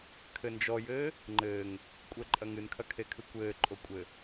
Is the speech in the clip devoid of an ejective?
no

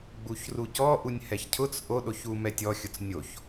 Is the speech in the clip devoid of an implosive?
no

